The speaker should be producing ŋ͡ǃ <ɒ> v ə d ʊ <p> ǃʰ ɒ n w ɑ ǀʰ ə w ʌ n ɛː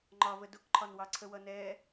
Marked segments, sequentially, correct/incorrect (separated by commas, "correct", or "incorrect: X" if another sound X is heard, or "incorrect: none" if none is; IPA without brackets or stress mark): correct, incorrect: k